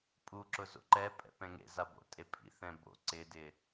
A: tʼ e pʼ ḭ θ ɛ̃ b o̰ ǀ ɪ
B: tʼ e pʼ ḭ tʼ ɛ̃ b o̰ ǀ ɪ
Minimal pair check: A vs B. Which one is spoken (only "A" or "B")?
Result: A